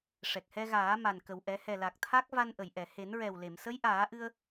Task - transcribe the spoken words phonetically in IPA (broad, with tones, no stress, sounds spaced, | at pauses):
ʂ ɛ˨˩ k̚ h ɛ˧ ɣ aː˨˩˦ m a˨˩ n k ə˨˩ w ʔ ɛ˨˩˦ h ɛ˨˩ l a˨˩ k̚ t̪ʰ a˦˥ k̚ v a˧ n ʔ ə˨˩˨ j ʔ ɛ˨˩˨ h e˨˩˦ n ɹ ɛ˨˩ w l e˨˩˨ m s ə˧˥ j ʔ aː˨˩˦ ʔ ɨ˧ ə̯